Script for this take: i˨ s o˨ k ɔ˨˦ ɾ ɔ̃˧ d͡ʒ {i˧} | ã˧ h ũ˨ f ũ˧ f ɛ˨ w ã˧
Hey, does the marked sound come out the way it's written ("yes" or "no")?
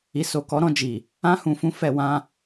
no